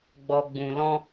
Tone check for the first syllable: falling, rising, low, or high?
low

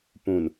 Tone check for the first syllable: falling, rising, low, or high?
low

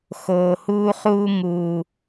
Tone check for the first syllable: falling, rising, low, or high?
low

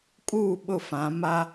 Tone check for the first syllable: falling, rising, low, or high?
falling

